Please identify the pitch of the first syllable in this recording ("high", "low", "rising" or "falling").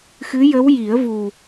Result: rising